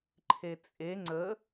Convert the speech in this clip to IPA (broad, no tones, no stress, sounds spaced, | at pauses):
ǃʰ e t͡sʼ e ŋ͡ǀ ə